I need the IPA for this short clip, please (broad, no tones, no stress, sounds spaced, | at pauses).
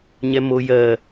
ɲ ɛ m o j ɜ